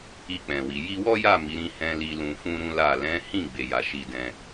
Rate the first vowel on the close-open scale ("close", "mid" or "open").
close